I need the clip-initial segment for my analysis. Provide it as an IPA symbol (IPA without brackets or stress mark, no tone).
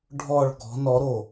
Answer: ɖʱ